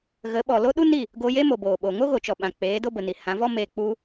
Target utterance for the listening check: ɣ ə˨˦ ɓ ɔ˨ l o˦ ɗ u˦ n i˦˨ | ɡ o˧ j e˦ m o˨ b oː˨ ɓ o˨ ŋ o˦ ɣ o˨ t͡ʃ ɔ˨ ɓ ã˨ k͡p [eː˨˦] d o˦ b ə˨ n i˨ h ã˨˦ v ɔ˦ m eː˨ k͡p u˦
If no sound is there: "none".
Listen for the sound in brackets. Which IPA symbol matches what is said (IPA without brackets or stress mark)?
eː˨˦